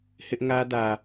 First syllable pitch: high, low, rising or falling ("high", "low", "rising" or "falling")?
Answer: high